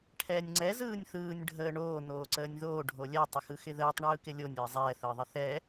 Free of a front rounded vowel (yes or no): yes